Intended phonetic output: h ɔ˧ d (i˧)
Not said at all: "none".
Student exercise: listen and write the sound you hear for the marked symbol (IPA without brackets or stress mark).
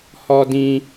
ĩ˧